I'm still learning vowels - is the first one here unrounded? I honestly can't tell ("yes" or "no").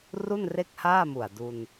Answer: no